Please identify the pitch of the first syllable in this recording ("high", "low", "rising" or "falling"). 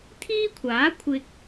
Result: high